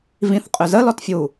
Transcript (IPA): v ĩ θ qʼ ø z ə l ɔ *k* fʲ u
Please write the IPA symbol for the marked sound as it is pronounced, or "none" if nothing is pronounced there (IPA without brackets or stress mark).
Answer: t